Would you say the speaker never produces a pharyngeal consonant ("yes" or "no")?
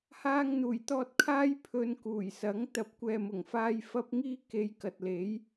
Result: yes